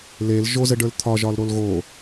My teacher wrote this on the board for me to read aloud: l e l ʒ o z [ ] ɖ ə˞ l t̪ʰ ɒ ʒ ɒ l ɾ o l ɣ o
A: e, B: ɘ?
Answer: B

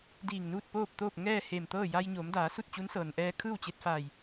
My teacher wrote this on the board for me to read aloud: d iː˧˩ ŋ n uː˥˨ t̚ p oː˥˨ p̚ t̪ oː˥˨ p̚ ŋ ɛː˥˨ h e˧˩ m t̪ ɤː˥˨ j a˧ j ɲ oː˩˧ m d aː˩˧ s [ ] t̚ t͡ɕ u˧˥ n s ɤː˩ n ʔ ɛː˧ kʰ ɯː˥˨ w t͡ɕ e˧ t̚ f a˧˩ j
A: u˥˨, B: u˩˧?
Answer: A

